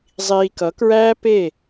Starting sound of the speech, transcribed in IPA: zˤ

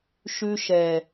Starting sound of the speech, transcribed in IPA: ʃ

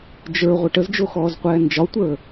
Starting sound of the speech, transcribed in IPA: d͡ʒ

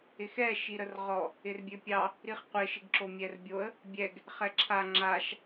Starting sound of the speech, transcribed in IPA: ɪ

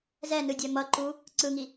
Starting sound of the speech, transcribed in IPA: z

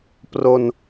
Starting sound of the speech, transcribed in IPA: p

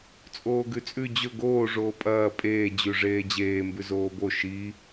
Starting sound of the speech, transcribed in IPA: t͡sʼ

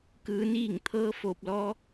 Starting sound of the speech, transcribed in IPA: k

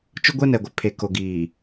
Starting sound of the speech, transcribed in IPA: t͡ʃ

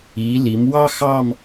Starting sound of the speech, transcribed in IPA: i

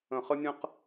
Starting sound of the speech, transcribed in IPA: ə̃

